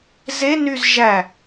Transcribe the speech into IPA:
z e n y z ʒ æ

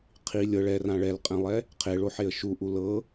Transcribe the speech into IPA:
qʰ i lʲ ɤ ɭ ɛ r ã ɭ ɛ l qʼ ɛ̃ lˠ ɛ | qʰ e ɭ o ħ e ə̯ ʃ u ʔ u l ɤ

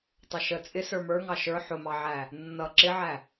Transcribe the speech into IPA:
tˤ ə ʃ ə t͡sʼ ɪ s ə˞ m ə˞ ŋ ɑ ʃ ə˞ ħ ʊ m ɑ ʕ æ | nː ʌ ǁ ɪ ʕ æ

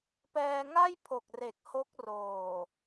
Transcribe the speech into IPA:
p ɛː˧ ŋ a˥˩ j pʰ o˨˩ k̚ r e˨˩ k̚ h o˦˥ k̚ r oː˨˩

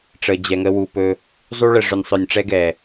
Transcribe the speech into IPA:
ʈ͡ʂ ə˨ d͡ʑ ɛ˨ ŋ ə˧ w u˨ p ɵ˧ | zˤ u˦ ɭ ə˨ ʐ ɵ˨ nʲ sˤ œ˨ nʲ ʈ͡ʂ ɛ˧ ɡ ɛ˨

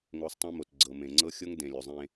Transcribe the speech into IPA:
ŋ o˧ sˤ tˤ ẽ˦ m o˨ t ɡ͡ǀ ɤ˨ m ẽ˨ ŋ͡ǀ ɤ˦ xʲ ɤ˦ ŋ d ẽ˨ lʲ o˨ zˤ ẽ˦

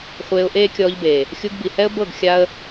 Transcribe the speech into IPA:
χʷ eː˧ ʊ̯ ʔ eː˦ kʲ ɔː˧ ʎ b eː˨ | xʲ u˧ ɡ b i˨ h ɛ˦ ə̯ b ɤ˦˨ ɡ xʲ a˦ ə̯

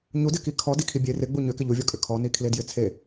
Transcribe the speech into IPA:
ɲ u d ɪ k i kʰ ɔ d i kʰ i bʲ e r ɪ ɡ͡b u ɲ ʏ k ɪ ʎ u vʲ ɔ kʼ ʏ kʰ ɔ n i kʰ l e d j ɪ t͡sʰ e

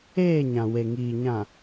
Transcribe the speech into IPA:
eː˦˨ ɲ ã˨ w e˨ ŋ iː˨ ɲ ã˨

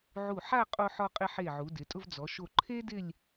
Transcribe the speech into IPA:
ʕ u˧˩ ħ a˥˧ qʼ o˧ ħ ɔ˧ qʼ ɪ˧ ħ e˧˩ ʕ u˩˧ d ɪ˩˧ tʼ ʊ˧ v d͡z ɔ˩˧ ʃ o˧˩ ǃʰ e˥ d ɪ˥˧ lʲ

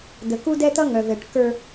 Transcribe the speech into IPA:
d̪ ə˨ k u˦ d ɛ˦ t̪ ʌ˦ ŋ œ˨ v ɛ˨ ʈ k ə˞˦

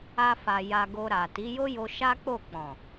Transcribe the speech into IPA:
a˧ f a˨ j a˧ ɡ o˧ ɾ a˨ t i˨˦ j o˦ j o˧ ʃ a˦ k͡p o˦˨ k͡p ɔ̃˨

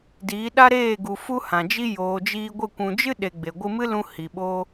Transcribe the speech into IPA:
d iː˨˦ ɗ a˦ ɾ eː˦˨ ɡ u˨ f u˦ h ã˨ d͡ʒ i˦ j oː˨ d͡ʒ iː˧ ɡʷ ə˦˨ kʷ ũ˨ d͡ʒ ɨ˦ ɗ e˧ ɡ͡b e˨ ɡʷ ɨ˧ m ɨ˦ l ũ˧ h i˨ ɓ o˦

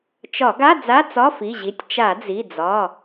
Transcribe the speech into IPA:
t͡ʃ ɒ˧˩˧ ɡ a˧˥˧ d͡z a˧˥˧ t͡s ɒ˧˥˧ f i˩˧˩ ʑ i˩˧˩ tʲ t͡ʃ a˧˩˧ d͡z i˩˧˩ d͡z ɒ˩˧˩

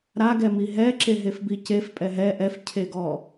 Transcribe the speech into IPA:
ɾ a ɡ ɛ m i ɦ ɛ ǁ e ɦ e f b i c e f pʼ ɛ ɦ ɛ ʔ ɛ f cʰ e ɡ ɔ

